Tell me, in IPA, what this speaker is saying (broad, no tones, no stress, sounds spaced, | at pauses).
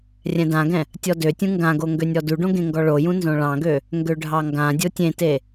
rʲ ɛ̃ d ã ɡ ɛ̃ | tʲ ɔ d ø tʲ ũ ŋ ɡ ã ɡ o ŋ ɡ ø nʲ ɔ d u ɖ õ ɡ ẽ ŋ ɡ ɔ ɭ o j ũ n z õ ɭ ɑ̃ ɡ ø | ŋ ɡ ø ɖʱ ɑ ŋ ɡ ã dʲ o tʲ ẽ t e